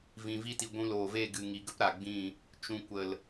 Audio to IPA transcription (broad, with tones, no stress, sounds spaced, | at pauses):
v ĩ˨ v i˧ t i˨ ɡʷ ũ˧ l oː˨ v e˦˨ ɡ ɨ˨ ŋ i˨ ɡ ə˦ p ɾ a˨ ɡ͡b ĩ˦˨ | t͡ʃ ũ˨ kʷ ə˨ l